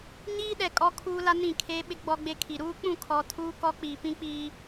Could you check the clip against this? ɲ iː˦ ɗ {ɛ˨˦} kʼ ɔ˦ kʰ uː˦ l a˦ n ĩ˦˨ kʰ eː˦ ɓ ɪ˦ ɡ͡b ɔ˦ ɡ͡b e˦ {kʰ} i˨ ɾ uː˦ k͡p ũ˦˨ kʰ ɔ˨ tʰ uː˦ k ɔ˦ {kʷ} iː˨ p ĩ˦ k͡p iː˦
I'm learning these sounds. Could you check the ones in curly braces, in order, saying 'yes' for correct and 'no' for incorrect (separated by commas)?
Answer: no, yes, no